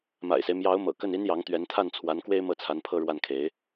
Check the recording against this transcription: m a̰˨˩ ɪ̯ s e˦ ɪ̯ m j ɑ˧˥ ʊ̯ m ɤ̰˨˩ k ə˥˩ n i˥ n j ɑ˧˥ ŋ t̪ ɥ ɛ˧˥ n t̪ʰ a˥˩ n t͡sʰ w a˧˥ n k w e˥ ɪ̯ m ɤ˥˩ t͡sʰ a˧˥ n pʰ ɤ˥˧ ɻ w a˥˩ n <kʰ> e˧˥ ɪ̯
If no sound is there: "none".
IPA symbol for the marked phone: kʰ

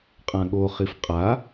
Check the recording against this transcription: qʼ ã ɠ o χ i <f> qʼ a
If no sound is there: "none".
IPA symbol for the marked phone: f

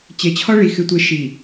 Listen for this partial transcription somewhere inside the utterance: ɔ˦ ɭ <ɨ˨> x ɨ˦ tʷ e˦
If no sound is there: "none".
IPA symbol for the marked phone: i˨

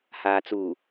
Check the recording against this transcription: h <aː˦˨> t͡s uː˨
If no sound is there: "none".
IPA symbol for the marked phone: aː˨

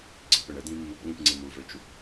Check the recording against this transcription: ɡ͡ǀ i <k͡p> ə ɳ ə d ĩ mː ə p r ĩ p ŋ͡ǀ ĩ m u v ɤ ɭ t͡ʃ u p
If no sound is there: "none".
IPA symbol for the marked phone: p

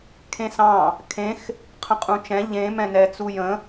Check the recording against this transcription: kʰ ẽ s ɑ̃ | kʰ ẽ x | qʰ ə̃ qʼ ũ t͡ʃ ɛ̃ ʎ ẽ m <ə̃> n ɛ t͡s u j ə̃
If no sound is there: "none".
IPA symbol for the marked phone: ɛ̃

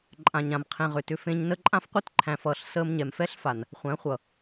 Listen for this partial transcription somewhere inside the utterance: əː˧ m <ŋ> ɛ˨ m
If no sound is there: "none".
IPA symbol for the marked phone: ɲ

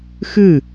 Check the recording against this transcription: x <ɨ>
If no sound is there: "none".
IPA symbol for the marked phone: ɨ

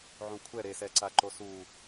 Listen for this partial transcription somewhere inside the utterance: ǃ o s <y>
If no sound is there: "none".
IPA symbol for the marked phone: u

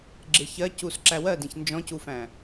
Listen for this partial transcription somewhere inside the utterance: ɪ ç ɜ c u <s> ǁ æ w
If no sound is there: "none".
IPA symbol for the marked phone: s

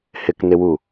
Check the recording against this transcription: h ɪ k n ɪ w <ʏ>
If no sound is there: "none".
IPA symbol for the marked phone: u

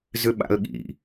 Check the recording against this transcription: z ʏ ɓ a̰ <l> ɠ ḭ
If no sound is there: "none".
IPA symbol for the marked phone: l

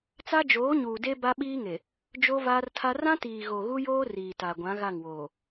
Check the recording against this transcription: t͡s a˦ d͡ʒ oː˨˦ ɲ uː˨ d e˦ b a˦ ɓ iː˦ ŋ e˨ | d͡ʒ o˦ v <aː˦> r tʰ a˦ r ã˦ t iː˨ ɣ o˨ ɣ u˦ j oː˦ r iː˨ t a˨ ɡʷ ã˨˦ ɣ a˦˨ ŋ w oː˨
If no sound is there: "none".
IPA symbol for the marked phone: aː˦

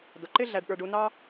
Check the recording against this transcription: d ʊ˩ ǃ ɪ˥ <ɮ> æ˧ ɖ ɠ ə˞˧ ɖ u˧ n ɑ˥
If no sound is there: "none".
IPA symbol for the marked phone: ɮ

